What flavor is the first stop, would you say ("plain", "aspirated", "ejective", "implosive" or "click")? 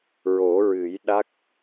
implosive